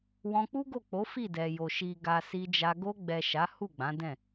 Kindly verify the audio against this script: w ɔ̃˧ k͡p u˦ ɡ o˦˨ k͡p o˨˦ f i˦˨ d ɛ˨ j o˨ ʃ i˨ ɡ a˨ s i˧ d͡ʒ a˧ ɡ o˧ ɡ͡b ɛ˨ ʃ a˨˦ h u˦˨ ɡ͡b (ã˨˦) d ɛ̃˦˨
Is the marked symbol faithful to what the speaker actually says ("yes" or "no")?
yes